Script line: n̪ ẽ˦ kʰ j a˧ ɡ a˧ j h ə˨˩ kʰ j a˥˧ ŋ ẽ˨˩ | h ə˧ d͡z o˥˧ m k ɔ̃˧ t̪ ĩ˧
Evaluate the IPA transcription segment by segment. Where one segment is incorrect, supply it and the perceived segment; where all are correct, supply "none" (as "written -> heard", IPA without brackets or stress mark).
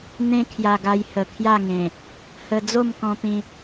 none